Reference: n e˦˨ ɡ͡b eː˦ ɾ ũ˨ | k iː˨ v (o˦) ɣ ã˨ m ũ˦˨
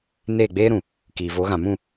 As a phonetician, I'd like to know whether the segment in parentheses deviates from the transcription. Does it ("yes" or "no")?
yes